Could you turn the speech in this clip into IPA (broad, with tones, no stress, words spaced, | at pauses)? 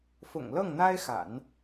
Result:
fʊ̰˨˩ŋlɤ˥˩ŋn̪a˥ɪ̯xa̰˨˩˦n